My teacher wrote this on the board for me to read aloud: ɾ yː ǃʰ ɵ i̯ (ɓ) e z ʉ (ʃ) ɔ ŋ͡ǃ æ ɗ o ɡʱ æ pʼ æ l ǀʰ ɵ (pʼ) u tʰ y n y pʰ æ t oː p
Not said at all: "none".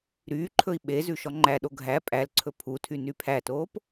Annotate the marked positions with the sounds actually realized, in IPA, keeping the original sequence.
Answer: ɓ, ʃ, pʰ

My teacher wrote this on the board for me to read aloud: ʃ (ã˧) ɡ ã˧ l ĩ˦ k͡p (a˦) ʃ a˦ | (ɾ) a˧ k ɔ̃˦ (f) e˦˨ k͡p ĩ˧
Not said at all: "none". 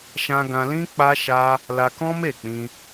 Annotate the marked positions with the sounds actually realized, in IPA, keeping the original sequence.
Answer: ã˧, a˦, l, m

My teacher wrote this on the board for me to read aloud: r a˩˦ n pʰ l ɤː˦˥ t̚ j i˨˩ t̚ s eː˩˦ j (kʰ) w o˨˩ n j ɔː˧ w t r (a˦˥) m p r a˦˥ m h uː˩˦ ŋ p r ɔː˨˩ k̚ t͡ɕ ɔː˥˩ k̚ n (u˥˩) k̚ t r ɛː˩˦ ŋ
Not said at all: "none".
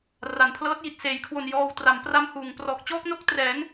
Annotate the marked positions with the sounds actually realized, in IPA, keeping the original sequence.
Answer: kʰ, a˩˦, o˥˩

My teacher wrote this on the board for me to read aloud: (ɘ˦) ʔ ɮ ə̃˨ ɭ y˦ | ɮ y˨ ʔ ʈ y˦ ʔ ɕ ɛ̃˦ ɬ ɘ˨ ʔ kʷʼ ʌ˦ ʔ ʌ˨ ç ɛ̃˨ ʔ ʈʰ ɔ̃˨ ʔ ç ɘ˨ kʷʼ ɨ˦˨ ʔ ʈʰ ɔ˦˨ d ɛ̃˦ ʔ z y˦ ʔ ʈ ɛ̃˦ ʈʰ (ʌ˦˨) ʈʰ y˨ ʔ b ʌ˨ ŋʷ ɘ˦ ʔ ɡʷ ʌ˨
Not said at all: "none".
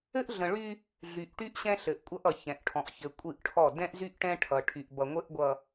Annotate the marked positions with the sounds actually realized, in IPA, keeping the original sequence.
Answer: ɘ˦, ʌ˨

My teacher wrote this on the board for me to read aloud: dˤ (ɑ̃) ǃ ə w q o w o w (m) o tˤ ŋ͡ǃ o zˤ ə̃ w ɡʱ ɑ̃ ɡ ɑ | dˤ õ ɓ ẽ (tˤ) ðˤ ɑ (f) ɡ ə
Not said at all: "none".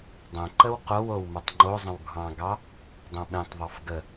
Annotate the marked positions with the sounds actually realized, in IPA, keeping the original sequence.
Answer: ə̃, m, tˤ, f

